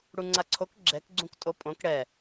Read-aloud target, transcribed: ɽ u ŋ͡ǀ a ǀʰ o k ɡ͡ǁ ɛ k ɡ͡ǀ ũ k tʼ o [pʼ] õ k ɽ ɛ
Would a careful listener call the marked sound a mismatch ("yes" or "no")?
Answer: no